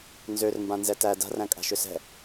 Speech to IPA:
nzørmbãnzɛ tæ da̤ræ̃kʼa̤ʃʏ sɛ̤

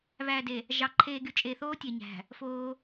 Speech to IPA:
βæː˨de˨ | ʒɑ˨ ǃʰeː˨ɡy˨ t͡ʃʼe˨θoː˦tʲe˨ɲæ̤˨ | foː˦

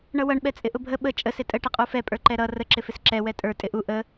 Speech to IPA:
ɳʌwʌɳ ɓɛt͡sʼɪʔʊbʱə ɓə t͡ʃʼə sɪtʼə ʈɪqʼufɛ pʼə˞ǃɛɾʌ rə ǁɪfɪsǁɛ wɛtʼə˞ tʼɪʔu ʔə

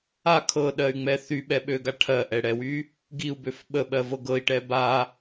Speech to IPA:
a kʰɤɗɜy̯ŋ͡mɛ θyɓɛɓøɡa ʈʰɜʔɛɽɛwy | ɡiu̯bøf ɓəɓɜvɤ ɡɤi̯ʈɛ ba

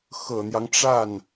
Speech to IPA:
xɤ˨˩n̪jɑ˦ŋʈ͡ʂa˥˩n

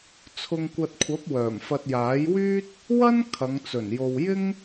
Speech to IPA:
t͡sʰʊ˧ŋkʷɐ˧t̚kʷʰɐ˨˥p̚wœː˨˩m fɐ˧t̚jaː˨˥jwyː˥t̚ | wɐ˥n kʰɐ˨˧ŋt͡sɵ˨˩n jo˨wjɪ˥ŋ

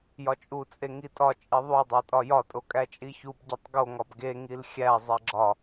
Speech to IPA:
jɒt͡ʃʼu t͡sʼeŋitʼɒ t͡ʃʼiðˤu dˤætʼɒjɒ tʼokʼæt͡ʃʼiçub ɟitˤɡo ŋɒbɡe ŋilxʲæ zˤeɡ͡ǁɒ

